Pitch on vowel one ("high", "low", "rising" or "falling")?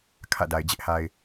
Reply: falling